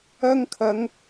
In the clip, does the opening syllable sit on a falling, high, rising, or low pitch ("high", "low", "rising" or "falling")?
high